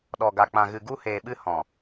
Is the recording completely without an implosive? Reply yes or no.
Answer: no